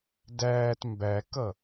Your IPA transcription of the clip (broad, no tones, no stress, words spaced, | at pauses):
dæːt mbækʌ